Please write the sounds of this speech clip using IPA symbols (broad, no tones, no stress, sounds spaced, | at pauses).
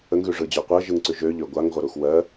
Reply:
ə ŋ ɣ ʉ ʐ ɯ d͡ʑ ø qʷ ɜ ʒ ɯ ŋ ǀ ʉ ʒ ø ʎ ø ɡʷ a ŋ ʁʷ ə ɾ u x w ɜ